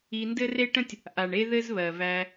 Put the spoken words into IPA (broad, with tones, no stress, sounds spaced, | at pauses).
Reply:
i˧ n d ɘ˦ r e˦ ʈ ə̃˦ tʲ | ʔ a˨ ɳ e˦ ð ɘ˦ z β ɜ˨ v æ˧